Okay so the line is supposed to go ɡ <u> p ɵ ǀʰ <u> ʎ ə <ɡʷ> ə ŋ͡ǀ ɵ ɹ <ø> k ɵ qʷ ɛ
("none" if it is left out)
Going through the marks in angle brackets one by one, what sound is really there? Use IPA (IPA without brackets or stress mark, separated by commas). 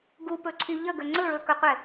u, y, ɡ, ɵ